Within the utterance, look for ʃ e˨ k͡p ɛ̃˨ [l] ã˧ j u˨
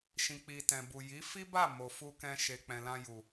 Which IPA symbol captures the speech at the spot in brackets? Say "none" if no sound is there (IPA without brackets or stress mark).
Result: l